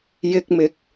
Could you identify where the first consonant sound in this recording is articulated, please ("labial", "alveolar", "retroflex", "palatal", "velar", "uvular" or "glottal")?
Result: palatal